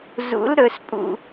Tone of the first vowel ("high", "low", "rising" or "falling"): rising